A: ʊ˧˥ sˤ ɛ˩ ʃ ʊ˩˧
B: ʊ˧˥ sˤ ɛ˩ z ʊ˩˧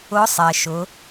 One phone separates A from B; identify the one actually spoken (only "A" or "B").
A